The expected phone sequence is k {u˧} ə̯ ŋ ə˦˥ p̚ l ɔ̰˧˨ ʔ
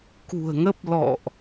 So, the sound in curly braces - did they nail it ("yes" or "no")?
no